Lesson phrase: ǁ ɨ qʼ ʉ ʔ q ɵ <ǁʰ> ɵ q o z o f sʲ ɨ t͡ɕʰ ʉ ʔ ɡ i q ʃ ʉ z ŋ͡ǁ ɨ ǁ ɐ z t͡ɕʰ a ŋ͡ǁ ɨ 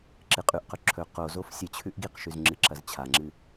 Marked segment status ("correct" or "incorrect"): correct